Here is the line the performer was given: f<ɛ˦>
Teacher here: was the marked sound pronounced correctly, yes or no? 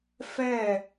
no